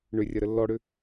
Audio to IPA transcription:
ɳ ʏ rʲ ɐ ɾ ə lː ɔ ɽ ʏ

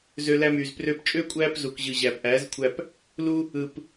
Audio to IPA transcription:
z ø˧ l æ˧ m yː˨ z p r ø˧ p t͡ʃʼ øː˦ kʷʼ æː˦ p z u˨ k ʑ ɯ˨ ʑ æː˨ p ʔ æː˨˦ z kʷʰ æ˧ p | l u˧ | ɯ˨ p

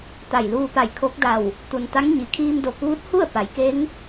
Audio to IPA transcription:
t̪ a˧˩ j l uː˧ p a˧˩ j kʰ o˧˥ k̚ d a˧˩ w | t̪ u˩ n t̪ a˧˥ ŋ ɲ i˩ kʰ iː˧ m d o˧˩ k uː˧˥ t̚ h u˥˨ ə̯ p a˩˧ j k e˧˥ ŋ

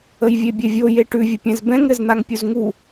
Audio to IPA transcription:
ə j vʲ e bʲ ɛ vʲ o j e ʈ ʉ vʲ ə pʲ ɛ̃ z b ɛ̃ ŋ ɾ ɘ z n̪ a ŋ pʲ u z ŋ u

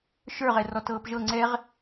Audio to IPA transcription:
ʃ ə˞ ʁ ɛ r ɔ t ɤː p ʒ ɤ ŋ͡ǀ ɛ ʁ

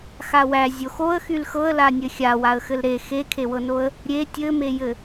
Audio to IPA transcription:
x a w æ zʲ o x o ə̯ x y l x ɤ ə̯ l a nʲ ɘ xʲ a w a ə̯ x ɘ l ɾ e x e kʰ e w ɤ n o ə̯ | ɾʲ e tʲ ɘ m e j ɘ

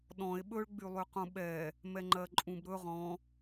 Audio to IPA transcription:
ɗ ɔ̃ e̯ ɓ ɵ ɭ ɡ͡b y lˠ y q ũ ɓ ɛ | m ɛ ŋ͡ǃ ɜ ǃʼ ũ b ɾ ɵ ʁ ɔ̃

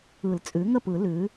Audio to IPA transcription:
ɯ˨˩˦ l t͡sʼ ʉ˩˥ ŋ ə˥˩ p ɯ˨˩˦ l ʉ˩˥

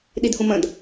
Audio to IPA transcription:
ɗ i d h ũ m ə̃ d

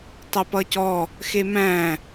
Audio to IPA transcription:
tˤ e p ʌ c ɔ | x e m æ̃

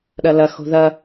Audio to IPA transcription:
ɗ ɐ l ɐ x o̤ ð ɐ

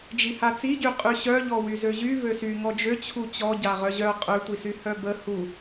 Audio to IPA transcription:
d͡ʒ i h a t͡s i ɟ y qʼ y ɕ œ ʎ ɔ w y z ø ʑ y v ø s y ŋ ɔ d͡ʒ ø t͡ɕʰ u t͡ɕ ɔ ɟ a ʁ œ ʑ œ qʼ ø tʷ i s y h œ b ə h u

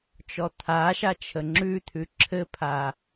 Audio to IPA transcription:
t͡ʃ ɔ t̪ʰ a ʃ a t͡ʃʰ ə ŋ͡ǁ ʉ t̪ʰ ʉ ǁʰ ɘ pʰ a

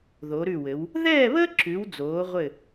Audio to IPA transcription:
ð o˩˧ ɾ ʉ˧˩ w ɘ˩˧ w | ð ɛː˥˧ β əː˥ ǁ ʉ˩˧ w d͡z oː˩˧ ʁʷ ɘ˧˩

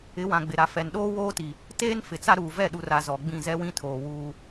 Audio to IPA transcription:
ɪ˨˦ w ã˨ ɡ͡b ɪ˨ ɾ a˨ f ɛ˨ n ɗ oː˦ w oː˦ t i˨ | t eː˦ n f ɪ˨ t͡s a˦ ɾ uː˨ v ɛ˦˨ ɗ u˨ r a˨ z ɔ˨ ɡ͡b ĩ˦˨ z ɛ˦ w ĩ˦ tʰ oː˨ w uː˦

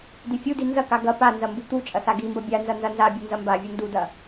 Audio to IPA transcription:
d̪ i fʲ u d i n z ɐ k a ɡ ɐ p a n z ɐ m b u t̪ u t͡ʃʼ ɐ s a ɡ i m b ɐ bʲ a n z ɐ n z ɐ n z a bʲ u n z ɐ m b a vʲ u n d u d ɐ

